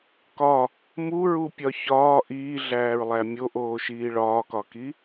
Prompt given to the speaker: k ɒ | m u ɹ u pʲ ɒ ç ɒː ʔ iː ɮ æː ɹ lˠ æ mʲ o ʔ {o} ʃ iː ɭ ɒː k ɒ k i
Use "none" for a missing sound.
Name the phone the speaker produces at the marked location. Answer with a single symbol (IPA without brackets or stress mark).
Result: oː